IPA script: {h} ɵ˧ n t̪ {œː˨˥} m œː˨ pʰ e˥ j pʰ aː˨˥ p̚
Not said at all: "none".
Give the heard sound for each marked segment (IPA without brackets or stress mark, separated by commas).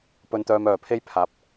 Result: p, œː˧